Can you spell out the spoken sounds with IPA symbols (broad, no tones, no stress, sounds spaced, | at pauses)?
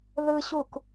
ð ɯ ɕ u k